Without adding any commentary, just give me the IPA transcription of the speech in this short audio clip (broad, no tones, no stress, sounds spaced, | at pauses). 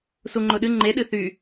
s u ŋ͡ǃ ʊ ɗ ɨ ŋ͡ǃ e ɗ ɨ θ y